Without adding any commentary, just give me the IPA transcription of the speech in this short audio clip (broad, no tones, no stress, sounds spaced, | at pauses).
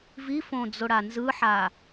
v i f õ d͡z o ɽ a n z ɯ ħ a